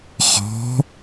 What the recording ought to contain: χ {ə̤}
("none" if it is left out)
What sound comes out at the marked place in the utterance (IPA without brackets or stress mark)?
ɔ̤